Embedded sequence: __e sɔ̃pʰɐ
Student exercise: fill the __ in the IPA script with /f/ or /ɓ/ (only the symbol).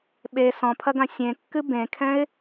ɓ